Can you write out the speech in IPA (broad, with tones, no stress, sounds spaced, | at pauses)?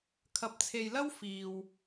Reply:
kʰ ɐ˨ p̚ t͡sʰ e˨ j l ɐ˥ w f iː˨ w